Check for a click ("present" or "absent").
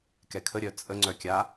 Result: present